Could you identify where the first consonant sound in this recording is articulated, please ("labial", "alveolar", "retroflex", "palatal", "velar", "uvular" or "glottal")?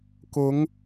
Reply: velar